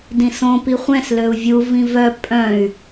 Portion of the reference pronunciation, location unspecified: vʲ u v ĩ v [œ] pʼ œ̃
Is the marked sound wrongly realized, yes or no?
no